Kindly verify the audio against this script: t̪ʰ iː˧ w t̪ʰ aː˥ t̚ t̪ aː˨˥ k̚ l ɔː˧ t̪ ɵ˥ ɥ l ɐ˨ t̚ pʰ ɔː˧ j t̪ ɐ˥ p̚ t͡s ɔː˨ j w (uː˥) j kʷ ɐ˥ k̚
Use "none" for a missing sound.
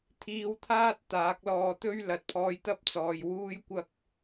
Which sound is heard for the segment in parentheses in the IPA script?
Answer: uː˥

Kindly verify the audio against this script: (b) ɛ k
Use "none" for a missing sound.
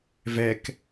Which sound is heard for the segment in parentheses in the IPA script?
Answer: v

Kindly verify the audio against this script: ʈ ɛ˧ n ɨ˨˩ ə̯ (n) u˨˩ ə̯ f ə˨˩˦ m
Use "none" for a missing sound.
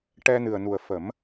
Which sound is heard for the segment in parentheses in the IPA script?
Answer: n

